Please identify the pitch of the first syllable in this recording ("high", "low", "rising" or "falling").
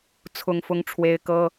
high